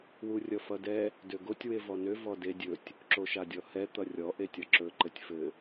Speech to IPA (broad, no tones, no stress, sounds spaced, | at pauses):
w u rʲ ʌ f ʌ d ɛ | d ø ɡ o tʲ w e v ɔ n ø v ɔ d e dʲ ɵ tʲ | ǁ o ʃ a dʲ ɔ h ɛ t̪ ʌ rʲ ɔ ʔ e tʲ ʌ ǁ ɵ ǃ ɘ tʲ f ɘ